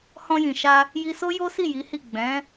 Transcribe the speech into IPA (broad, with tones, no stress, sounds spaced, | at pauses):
h ɔ̃˧ j ĩ˨ ʃ a˧ | j i˧ s o˦ j o˦ s i˦˨ j i˨˦ h i˦˨ ɡ͡b ɛ̃˨˦